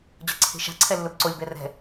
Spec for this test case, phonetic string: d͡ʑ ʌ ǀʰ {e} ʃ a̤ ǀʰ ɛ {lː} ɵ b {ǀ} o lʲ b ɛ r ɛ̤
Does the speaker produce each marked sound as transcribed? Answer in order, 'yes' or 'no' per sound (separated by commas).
no, yes, yes